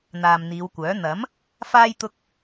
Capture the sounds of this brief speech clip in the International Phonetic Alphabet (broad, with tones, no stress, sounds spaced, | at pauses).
n̪ aː˨ m n̪ iː˨˧ w kʷ œː˨˥ n̪ ɐ˨˥ m | f aː˥ j t̪ ʊ˥ k̚